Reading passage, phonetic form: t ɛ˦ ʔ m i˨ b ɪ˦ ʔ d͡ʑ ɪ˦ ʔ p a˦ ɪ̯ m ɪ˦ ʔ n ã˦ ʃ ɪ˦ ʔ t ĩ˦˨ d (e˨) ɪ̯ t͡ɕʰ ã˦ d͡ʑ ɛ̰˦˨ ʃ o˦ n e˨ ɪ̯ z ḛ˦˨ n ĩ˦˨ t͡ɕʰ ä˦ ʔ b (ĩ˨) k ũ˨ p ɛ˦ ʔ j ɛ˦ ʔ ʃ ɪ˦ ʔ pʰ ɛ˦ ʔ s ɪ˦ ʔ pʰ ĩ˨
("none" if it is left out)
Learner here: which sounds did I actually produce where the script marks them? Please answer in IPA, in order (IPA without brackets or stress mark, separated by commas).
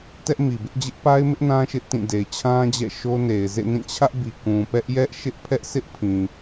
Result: e˨, i˨